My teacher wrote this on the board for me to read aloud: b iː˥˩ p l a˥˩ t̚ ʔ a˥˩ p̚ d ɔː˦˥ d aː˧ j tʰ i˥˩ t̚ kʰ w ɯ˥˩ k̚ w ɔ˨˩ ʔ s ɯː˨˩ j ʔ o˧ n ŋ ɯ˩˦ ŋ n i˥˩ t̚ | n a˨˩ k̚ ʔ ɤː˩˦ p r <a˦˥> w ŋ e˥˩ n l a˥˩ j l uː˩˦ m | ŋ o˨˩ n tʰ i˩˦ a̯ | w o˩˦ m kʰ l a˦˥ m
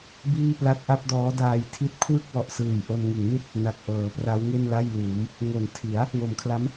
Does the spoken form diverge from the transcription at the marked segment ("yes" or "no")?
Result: no